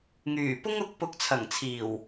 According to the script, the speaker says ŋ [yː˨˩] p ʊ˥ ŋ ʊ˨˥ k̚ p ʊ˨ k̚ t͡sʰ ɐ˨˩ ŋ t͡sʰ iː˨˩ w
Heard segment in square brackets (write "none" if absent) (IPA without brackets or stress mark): yː˨˩